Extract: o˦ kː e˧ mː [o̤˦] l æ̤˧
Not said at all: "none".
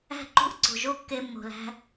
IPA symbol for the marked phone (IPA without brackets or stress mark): o̤˨